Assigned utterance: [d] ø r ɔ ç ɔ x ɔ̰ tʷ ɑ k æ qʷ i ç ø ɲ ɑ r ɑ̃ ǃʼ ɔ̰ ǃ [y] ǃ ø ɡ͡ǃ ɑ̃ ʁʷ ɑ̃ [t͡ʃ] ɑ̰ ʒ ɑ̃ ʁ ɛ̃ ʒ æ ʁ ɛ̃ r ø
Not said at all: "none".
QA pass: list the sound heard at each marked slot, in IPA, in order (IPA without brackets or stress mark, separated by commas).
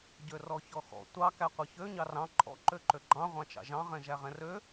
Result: ɟ, ø, t͡ʃ